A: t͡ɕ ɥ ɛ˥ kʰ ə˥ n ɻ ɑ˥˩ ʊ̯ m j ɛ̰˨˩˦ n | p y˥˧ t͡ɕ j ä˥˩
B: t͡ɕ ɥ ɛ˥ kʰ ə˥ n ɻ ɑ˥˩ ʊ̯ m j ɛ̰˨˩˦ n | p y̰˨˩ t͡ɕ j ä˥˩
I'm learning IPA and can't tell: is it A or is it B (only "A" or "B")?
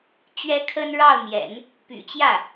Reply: B